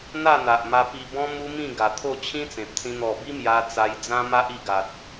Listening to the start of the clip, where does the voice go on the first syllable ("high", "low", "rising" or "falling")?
falling